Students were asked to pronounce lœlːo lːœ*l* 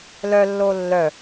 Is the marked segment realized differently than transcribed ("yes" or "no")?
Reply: yes